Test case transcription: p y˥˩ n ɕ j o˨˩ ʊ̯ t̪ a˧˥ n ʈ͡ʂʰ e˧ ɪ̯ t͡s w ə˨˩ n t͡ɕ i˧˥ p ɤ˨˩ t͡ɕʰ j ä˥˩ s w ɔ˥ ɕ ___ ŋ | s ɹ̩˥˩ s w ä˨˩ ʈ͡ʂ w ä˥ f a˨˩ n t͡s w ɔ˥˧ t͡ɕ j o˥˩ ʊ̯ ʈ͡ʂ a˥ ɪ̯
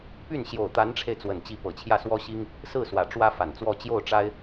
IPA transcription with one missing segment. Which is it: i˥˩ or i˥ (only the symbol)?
i˥